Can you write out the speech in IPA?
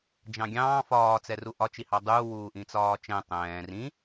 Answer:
d͡ʒɑ̃ɡʲɑ̃ː fɒːt͡sɛ ruʔɒ t͡ʃihɑdˤuː wuːʔĩt͡sɒːt͡ʃɛ̃ tˤɛ̃ː rĩ

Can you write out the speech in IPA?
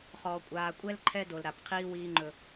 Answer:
χɔː˨kʷʼaː˨kʷʼɛ˦l ǃʰɛ˦do˨l ɾa˨pqʰiː˦wiː˦ŋ͡ǃɵ˦

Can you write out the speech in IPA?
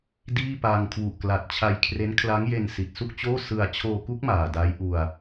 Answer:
diː˥˩pa˧ŋ kʰwu˨˩ʔkla˨˩t̚t͡ɕʰa˧jkʰre˦˥n kʰla˦˥ŋje˧n si˨˩t̚su˥˩k̚t͡ɕoː˥˩ sɯ˧a̯ t͡ɕʰoː˧ku˦˥k̚ maː˨˩da˦˥jʔu˧a̯

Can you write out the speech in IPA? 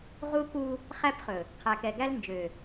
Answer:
ʁu˦ku˦ | χæ˦pχɵ˨ | qʰæ˨kɛ˨ɡæ˦l nd͡ʒø˨

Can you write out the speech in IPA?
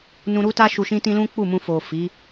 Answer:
nũ˧ɾu˦ta˦ ʃu˧ʃĩ˦tĩ˦ lũ˦k͡pu˦˨mũ˧ fo˨fi˨˦

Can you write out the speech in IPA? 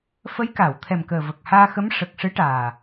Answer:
fə˧˥jkaː˨˩˨wt̪ʰɛ˨˩mkəː˨˩ və˨˩k̚haː˧xə˧˥m ʂə˨˩k̚ʂɨ˧˥ʈaː˨˩

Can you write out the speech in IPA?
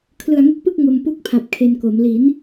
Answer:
kʰlɯ˨˩a̯ŋɯ˦˥k̚pɯ˥˩k̚ ŋo˧mpu˥˩k̚pʰa˨˩p̚ kʰe˧nko˩˦m li˩˦n

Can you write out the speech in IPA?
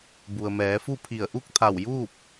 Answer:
bu˩ə̯mɛː˩˧fu˥˨pʰi˧˩ə̯ ʔu˥˨k̚t̪ʰa˧˩wjuː˥˨p̚

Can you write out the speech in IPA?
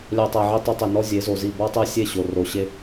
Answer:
lʲæ˦tˤæ˧ʕi˦ tˤu˧tˤi˨nɔ˦ zʲe˨˦zo˨zi˦˨ bɔ˦tˤe˦sʲe˦˨ ɕo˨ro˨ɕe˦

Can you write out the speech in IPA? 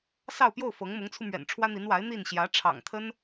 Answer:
sɑ˥˧ʊ̯pjo˥˩ʊ̯ fɤ˧˥ŋmʊ˧˥ŋt͡sʰu˧mɥɛ̰˨˩n ʈ͡ʂʰwä˥n̪i˧˥n wa˧˥ɪ̯ n̪i˥˩n ɕjä˧˥ʈ͡ʂʰɑ̰˨˩ŋt̪ʰə˥n

